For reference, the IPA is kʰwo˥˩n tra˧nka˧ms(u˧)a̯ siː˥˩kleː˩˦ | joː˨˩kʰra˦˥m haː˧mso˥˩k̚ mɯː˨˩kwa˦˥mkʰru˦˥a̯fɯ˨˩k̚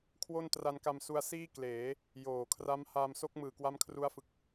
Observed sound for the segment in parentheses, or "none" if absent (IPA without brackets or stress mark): u˧